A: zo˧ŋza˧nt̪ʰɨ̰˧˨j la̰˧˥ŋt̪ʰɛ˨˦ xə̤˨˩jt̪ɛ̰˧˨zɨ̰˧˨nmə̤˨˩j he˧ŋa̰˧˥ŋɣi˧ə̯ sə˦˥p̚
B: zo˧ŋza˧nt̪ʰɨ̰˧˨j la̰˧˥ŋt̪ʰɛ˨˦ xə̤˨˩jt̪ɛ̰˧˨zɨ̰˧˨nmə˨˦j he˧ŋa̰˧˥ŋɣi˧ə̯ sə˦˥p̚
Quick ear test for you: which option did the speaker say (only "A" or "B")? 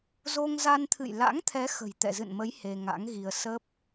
B